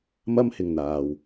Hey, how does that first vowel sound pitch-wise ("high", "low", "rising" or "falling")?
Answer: high